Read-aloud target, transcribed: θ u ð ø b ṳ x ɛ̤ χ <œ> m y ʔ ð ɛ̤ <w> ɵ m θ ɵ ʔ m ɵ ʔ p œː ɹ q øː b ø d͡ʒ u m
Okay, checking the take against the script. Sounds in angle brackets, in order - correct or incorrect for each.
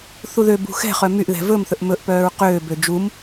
correct, incorrect: v

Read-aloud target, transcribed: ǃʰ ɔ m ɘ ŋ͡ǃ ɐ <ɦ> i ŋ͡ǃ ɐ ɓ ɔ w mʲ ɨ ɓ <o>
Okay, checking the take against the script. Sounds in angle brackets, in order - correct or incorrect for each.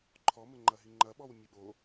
correct, correct

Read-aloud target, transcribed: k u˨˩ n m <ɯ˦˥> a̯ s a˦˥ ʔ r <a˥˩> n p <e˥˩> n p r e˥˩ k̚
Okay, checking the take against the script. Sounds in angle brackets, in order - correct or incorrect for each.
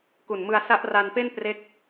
incorrect: ɯ˧, incorrect: a˧, correct

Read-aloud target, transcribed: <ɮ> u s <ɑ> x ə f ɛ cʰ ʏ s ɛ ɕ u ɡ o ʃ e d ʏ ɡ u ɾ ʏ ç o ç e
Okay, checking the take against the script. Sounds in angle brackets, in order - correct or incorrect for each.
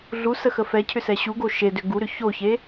correct, incorrect: ə

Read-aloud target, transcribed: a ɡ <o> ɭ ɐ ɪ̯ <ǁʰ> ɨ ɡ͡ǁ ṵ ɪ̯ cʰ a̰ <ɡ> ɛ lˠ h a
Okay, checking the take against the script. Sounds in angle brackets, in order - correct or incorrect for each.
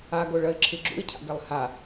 correct, correct, correct

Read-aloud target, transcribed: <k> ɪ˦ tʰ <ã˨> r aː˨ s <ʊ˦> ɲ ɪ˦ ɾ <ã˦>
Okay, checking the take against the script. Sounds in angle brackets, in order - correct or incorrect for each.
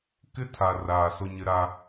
correct, incorrect: a˨, correct, incorrect: a˦

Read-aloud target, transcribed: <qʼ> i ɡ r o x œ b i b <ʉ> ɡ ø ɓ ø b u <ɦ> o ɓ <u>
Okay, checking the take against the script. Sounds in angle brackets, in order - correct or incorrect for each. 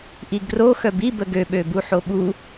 incorrect: ʔ, incorrect: ə, incorrect: ħ, correct

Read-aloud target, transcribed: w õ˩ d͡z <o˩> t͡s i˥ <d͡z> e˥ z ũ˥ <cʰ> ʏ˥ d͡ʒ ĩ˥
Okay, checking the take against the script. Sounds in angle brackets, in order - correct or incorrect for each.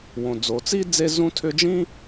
correct, correct, incorrect: tʰ

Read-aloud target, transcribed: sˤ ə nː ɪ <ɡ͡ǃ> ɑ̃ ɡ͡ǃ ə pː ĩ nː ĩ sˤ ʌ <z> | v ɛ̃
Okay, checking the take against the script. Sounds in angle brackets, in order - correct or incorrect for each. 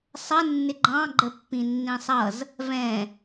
correct, correct

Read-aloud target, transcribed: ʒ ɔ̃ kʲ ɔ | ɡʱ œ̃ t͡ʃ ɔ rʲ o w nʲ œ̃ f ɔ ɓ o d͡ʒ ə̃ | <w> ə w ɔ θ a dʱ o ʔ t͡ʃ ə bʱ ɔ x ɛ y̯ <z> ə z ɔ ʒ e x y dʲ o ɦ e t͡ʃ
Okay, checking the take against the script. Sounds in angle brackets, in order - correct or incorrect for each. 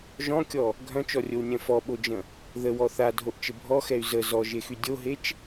incorrect: ð, correct

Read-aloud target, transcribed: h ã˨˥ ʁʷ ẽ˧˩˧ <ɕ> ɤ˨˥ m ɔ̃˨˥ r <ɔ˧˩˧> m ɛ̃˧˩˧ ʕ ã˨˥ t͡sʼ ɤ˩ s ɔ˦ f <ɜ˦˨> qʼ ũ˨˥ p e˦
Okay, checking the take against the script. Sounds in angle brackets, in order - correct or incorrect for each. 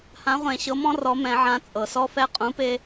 correct, incorrect: ɔ˨˥, incorrect: ɛ˦˨

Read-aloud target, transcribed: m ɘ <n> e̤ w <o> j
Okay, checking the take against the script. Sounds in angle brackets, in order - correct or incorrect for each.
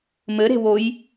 incorrect: ɾ, correct

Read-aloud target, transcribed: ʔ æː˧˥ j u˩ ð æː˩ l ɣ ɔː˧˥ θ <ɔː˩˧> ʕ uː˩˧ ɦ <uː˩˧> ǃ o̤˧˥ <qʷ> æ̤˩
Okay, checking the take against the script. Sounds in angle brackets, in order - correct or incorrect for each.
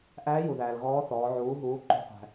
correct, correct, correct

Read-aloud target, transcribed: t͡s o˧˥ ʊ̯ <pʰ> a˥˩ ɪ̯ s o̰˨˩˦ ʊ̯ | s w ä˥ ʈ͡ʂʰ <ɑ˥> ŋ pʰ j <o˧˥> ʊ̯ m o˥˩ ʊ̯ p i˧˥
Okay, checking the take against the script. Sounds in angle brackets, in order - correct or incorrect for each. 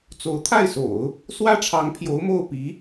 incorrect: t̪ʰ, incorrect: ɑ˧˥, correct

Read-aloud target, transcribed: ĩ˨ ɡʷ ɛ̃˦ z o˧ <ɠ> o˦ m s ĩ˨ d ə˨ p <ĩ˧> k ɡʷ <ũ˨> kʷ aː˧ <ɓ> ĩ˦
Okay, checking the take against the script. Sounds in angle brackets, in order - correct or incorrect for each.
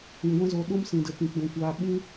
incorrect: ɗ, incorrect: ĩ˨, correct, correct

